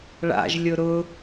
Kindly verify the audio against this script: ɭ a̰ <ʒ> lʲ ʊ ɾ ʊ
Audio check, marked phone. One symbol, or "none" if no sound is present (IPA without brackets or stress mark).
ʒ